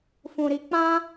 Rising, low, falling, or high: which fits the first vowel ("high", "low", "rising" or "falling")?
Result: low